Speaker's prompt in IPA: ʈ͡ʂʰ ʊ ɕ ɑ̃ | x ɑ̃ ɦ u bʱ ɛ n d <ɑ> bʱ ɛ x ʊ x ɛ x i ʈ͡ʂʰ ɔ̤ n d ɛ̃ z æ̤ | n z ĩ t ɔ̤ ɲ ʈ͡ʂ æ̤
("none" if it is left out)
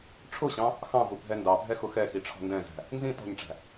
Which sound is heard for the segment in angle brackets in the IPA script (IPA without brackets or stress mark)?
ɑ